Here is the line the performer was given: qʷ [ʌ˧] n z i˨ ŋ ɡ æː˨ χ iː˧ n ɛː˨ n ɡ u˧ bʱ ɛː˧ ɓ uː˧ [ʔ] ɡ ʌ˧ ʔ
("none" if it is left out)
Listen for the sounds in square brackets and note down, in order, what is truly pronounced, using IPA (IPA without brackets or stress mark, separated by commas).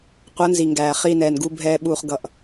ʌ˨˦, χ